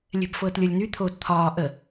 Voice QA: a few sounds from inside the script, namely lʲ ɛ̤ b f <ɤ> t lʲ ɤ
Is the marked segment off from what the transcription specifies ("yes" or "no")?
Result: yes